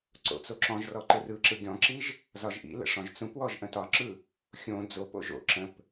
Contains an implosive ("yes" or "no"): no